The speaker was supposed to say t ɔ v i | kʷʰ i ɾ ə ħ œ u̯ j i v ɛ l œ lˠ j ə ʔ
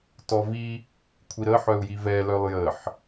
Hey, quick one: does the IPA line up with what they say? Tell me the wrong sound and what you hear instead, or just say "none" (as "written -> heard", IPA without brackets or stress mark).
ʔ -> ħ